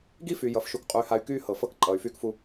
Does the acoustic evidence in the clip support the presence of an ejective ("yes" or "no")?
yes